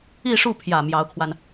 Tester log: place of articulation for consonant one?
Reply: retroflex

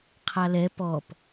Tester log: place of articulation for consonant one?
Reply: uvular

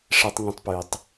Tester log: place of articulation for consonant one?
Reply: retroflex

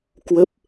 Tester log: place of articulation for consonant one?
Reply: velar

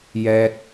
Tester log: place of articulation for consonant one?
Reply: palatal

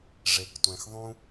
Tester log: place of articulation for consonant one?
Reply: retroflex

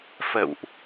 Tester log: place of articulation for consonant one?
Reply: labial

